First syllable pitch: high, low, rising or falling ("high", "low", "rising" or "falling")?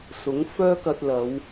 rising